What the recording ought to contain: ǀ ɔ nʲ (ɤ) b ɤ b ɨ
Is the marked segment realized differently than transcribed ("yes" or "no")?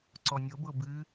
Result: no